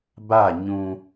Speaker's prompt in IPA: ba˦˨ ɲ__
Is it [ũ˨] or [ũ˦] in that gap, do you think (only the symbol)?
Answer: ũ˦